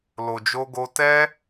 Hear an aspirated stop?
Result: no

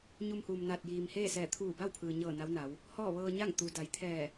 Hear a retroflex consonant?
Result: no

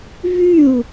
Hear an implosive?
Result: no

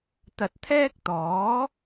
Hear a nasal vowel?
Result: no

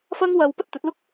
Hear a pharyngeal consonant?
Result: no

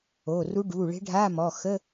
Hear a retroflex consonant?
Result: yes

